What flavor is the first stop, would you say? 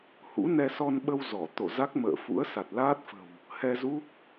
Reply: implosive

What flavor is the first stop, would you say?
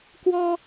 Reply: plain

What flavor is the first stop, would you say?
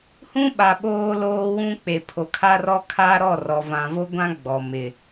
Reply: implosive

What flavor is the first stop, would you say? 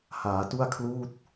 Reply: plain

